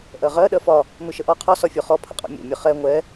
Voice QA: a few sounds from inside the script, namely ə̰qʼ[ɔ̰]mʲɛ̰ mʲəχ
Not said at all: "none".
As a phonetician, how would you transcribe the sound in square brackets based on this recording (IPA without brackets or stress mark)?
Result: ɔ̰